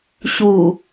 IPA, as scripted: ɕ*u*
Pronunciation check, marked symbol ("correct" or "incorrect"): correct